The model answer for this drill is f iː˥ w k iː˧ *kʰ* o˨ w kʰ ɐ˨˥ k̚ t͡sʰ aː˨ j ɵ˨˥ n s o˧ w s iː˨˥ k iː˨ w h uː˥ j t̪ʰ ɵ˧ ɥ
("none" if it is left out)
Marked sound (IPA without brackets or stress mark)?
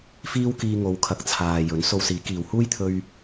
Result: ŋ